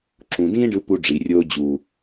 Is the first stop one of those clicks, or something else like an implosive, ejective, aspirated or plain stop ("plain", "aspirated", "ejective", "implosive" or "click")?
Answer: click